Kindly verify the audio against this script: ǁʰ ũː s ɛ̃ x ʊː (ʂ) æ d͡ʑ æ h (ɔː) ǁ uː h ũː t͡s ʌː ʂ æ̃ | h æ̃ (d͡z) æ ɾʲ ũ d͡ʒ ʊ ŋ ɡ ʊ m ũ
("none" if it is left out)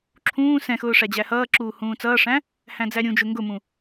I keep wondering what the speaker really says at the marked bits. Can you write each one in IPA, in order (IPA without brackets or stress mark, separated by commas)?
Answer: ʂ, ʌː, d͡z